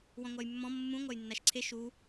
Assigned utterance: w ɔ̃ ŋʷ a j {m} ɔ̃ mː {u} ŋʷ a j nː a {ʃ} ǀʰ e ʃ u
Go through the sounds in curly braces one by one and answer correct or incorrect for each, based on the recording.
incorrect: mː, incorrect: ũ, correct

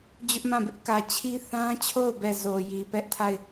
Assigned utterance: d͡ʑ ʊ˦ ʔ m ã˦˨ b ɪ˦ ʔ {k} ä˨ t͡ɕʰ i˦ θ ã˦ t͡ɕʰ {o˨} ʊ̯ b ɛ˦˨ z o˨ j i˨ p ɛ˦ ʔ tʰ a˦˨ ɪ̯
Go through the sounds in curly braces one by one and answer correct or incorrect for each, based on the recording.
correct, incorrect: o˦˨

